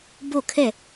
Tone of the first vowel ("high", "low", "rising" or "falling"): falling